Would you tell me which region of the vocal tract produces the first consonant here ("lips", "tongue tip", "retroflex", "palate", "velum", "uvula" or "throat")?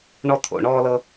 retroflex